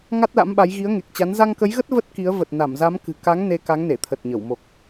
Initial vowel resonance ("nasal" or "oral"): oral